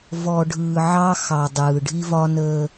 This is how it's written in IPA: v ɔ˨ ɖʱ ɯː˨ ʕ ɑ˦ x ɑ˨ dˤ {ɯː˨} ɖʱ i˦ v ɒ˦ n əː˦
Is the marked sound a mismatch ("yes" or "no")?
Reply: no